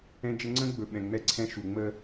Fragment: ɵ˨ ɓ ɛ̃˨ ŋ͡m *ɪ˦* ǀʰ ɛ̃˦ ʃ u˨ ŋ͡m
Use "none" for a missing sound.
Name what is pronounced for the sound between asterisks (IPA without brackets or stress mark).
ɛ˦